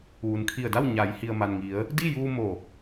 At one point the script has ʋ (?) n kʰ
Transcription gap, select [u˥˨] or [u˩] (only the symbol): u˩